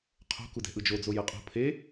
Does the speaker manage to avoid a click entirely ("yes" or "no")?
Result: yes